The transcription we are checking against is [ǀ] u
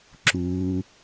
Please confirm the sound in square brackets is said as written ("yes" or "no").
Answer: no